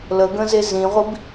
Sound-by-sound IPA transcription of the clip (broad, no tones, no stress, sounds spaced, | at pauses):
l ə ɡ ə̃ z e z ĩ ʁʷ i b